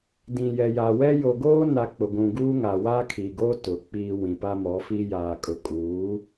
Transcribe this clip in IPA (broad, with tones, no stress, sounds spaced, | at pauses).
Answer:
d ĩ˨ j ɛ˨ j a˨ w ɛ˦ j o˨ ɡ oː˦ n a˨ k͡p ʊ˨ ɡʷ ũ˨ ɡ uː˦ ŋ a˨ w aː˦ kʰ iː˨ ɡ oː˦ t ʊ˨˦ k͡p iː˦ w ĩ˨ p a˦ m ɔ˨˦ f i˦ j aː˨ kʼ ʊ˨ kʼ uː˨˦